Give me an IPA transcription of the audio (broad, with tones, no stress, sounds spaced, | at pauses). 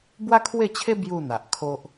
b w a˦ kʰ w e˥˧ t͡ɕʰ e˦ b j u˥˧ n̪ a˨ ʔ kʰ o˦ ʔ